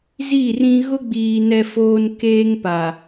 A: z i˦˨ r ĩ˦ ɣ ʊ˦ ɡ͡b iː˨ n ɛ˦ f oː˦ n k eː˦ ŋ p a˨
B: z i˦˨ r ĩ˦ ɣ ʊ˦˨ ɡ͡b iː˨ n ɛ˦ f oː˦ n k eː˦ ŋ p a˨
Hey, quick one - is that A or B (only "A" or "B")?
A